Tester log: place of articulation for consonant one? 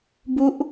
labial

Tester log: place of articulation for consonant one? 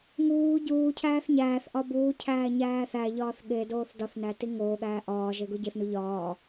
velar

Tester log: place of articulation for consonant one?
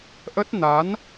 glottal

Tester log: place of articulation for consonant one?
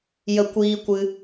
palatal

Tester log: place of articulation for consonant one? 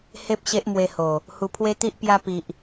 glottal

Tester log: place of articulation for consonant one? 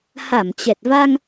glottal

